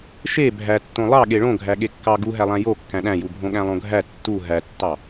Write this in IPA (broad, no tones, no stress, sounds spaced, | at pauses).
ʃ e bʱ æ tː õ lˠ ɑ ɠ e ɭ õ ɡʱ æ ɠ e kː ɑ ɡ u ɦ æ lˠ æ̃ j o kː æ̃ ɗ æ̃ j u bʱ õ ɠ æ̃ lˠ õ ɡʱ æ tː u ɦ æ tː ɑ